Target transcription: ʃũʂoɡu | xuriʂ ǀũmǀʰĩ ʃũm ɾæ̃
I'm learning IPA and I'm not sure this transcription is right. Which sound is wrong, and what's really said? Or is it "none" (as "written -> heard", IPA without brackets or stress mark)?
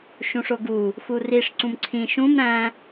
none